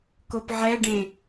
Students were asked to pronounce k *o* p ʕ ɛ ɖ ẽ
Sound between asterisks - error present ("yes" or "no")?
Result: no